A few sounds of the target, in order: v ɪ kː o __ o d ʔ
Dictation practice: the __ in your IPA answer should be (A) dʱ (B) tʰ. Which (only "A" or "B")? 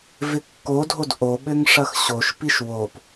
A